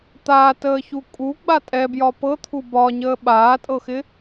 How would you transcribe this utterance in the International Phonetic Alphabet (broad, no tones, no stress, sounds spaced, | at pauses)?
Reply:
t̪ aː t əː ç u kʼ u ɡ͡b a tʼ ɛ b j ɒ p ɤ t̪ʰ u b ɒ ɲ əː ɓ aː tʼ ɤ x ɪ